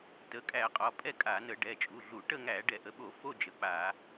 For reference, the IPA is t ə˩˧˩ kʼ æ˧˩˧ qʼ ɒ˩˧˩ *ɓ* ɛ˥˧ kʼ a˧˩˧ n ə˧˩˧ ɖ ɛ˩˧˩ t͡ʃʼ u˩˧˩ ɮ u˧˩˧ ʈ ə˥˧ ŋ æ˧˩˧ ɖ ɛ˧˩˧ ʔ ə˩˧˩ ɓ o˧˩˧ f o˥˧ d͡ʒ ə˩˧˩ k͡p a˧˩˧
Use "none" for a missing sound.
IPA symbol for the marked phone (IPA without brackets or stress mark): pʼ